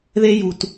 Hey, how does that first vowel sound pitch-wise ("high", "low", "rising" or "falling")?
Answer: high